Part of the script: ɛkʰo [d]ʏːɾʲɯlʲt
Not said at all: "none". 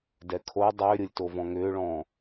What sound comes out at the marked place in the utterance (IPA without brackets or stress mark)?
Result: dˤ